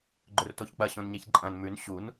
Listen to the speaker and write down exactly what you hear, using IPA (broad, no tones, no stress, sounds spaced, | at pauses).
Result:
ɡ͡ǃ ɵ r t o ç k͡p ɐ ɕ õ n ɲ e ç ǃʼ ɐ̃ n m ʉ n ɕ u n